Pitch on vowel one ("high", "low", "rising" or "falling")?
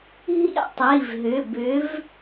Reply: falling